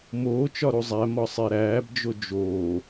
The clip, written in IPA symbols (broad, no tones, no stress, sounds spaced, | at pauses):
m oː t͡ʃ ɒ ɾ u zˤ æ m ɒ sˤ e ɾ æː b d͡ʒ o d͡ʒ oː